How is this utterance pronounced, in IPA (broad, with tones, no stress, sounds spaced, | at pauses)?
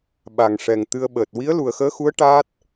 ɓ a˨˩˨ ŋ ʂ ɛ˨˩ ŋ t̪ ɨ˧ ə̯ ɓ əː˨˩ t̚ w i˧˥ ə̯ l u˨˩ ə̯ x əː˧˥ x u˧˥ ə̯ ʈ aː˦˥ t̚